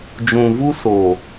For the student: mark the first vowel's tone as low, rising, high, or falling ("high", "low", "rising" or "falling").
low